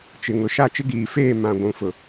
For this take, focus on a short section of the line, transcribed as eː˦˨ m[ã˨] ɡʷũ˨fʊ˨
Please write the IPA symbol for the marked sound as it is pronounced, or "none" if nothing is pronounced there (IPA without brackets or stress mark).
ã˨